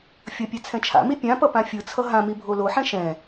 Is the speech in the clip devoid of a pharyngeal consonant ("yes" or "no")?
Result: no